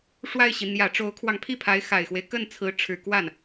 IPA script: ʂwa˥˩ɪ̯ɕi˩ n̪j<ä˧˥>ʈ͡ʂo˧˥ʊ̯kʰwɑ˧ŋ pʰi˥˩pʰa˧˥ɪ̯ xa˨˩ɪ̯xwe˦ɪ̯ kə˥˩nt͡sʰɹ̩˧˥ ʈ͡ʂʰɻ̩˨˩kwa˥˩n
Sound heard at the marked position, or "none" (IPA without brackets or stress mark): ä˨˩